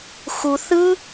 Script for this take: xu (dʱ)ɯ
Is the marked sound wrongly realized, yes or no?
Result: yes